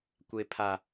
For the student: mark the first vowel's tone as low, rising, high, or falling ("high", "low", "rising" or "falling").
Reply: low